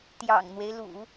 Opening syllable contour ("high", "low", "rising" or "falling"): low